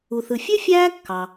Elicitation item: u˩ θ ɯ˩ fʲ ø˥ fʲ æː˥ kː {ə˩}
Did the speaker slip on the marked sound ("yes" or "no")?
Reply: yes